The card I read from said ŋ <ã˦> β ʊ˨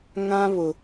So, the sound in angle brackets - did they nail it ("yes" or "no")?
yes